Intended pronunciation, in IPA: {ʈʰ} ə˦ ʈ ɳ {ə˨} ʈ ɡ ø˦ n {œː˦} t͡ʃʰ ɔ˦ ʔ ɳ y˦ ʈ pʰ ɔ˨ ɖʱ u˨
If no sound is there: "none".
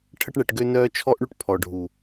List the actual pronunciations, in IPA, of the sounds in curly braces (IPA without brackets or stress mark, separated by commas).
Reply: ʈʰ, ɛ˨, œː˦